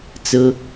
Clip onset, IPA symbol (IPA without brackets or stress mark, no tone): t͡s